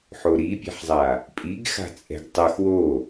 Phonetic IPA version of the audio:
ħ o ɾ i pʲ ɛ̤ ħ zˤ a | pʼ i ɡ x a̤ t͡sʼ ɛ̤ ɡ tˤ ɤ x w o

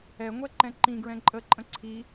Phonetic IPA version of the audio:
ɛ ŋʷ ɛ ǃ ɛ̃ ǃ ĩ ɡ ɹ ɛ̃ ǃʼ ə ǃʼ ə̃ ǀʰ i

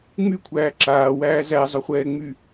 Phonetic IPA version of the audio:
ŋ͡m y kʷʰ æː ǁ aː w æː z æ zˤ ɵ χʷ ɛː ŋ͡m y

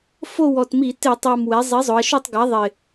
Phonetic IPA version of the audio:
f o˦˨ w ɔ˨˩ t m i˧˩˧ t ɪ˧˩˧ tˤ a˨˩ m w ɛ˩˧ zˤ i˩˥ zˤ ʊ˩˧ ɐ̯ ʃ u˦˨ tˤ ɡ a˩˥ ðˤ ɪ˨˩

